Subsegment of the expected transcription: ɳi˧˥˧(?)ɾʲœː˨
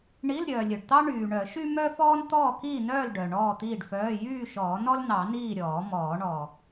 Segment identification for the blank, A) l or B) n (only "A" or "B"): A